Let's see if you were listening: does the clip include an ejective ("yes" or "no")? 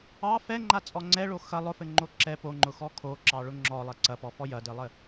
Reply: yes